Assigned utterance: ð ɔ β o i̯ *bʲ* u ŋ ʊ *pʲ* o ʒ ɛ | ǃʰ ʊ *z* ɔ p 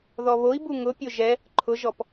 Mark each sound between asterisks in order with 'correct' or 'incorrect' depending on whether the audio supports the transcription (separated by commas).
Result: incorrect, correct, incorrect